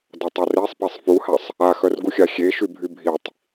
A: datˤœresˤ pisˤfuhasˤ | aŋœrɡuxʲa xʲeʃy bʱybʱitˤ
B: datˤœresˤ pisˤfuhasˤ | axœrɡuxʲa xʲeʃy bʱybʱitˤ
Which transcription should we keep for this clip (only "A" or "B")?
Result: B